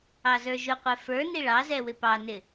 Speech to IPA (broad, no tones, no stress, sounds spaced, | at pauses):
ɑ z ə˞ ʒ ʊ qʷ ɛ f ə˞ n i ɭ ɑ z ɛ w ɪ p ɑ n ɪ